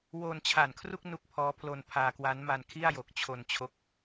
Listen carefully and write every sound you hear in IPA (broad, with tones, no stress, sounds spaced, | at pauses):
w oː˧ n t͡ɕʰ a˨˩ n kʰ r u˥˩ k̚ n u˦˥ k̚ pʰ ɔː˦˥ pʰ l o˧ n pʰ aː˧ k w a˦˥ n m a˧ n kʰ i˥˩ a̯ j o˨˩ k̚ t͡ɕʰ o˧ n t͡ɕʰ o˦˥ k̚